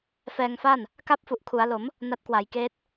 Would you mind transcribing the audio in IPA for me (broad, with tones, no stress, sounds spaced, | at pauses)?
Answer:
f ɛː˧ ŋ f a˥˩ n | k a˥˩ p̚ f u˨˩ ʔ kʰ u˩˦ a̯ l o˩˦ m | n a˦˥ t̚ k w a˩˦ j k eː˦˥ t̚